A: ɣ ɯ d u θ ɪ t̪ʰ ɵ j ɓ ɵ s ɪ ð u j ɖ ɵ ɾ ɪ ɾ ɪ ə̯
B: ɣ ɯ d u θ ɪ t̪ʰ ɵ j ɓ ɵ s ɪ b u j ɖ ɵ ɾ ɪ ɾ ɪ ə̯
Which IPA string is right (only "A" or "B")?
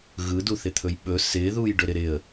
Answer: A